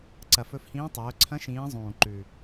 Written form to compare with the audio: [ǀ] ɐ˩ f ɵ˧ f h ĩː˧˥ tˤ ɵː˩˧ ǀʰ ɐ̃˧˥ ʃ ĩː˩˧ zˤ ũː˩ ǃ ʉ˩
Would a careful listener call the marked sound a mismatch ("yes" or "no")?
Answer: no